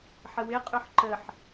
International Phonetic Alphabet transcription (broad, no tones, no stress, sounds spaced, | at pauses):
ħ ə w ɪ qʼ ø ħ ǃ ə ħ